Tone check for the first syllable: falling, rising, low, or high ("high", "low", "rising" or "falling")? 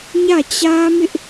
falling